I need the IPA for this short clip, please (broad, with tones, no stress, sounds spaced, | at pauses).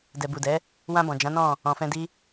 d ɛ˨ b u˨ d ɛ˨˦ | w ã˧ b ɔ̃˨ d͡ʒ ã˨˦ n ɔ̃˦˨ | ɔ̃˨ f ɛ̃˧ d i˦